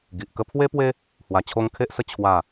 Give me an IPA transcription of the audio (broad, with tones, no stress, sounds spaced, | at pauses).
ɡ i˨ ʔ k ə˦ pʰ w e˦ p w e˦ | h w a˧ t͡ɕʰ o˦ ŋ kʰ e˦ ʔ s ə˦ t͡ɕʰ w a˥˧